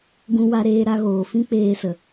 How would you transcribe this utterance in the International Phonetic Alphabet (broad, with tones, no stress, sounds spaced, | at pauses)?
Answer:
ɡ ũ˧ w a˧ ɾ eː˧ ɾ a˧ ɣ oː˨ f ĩ˦ k͡p eː˧ s ə˨